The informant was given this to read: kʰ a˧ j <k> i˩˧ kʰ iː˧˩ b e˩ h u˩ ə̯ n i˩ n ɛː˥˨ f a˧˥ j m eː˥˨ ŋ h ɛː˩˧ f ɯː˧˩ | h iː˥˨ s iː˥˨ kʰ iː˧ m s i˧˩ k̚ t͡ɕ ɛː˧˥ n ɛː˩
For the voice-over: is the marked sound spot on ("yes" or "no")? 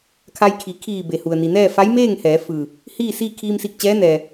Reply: no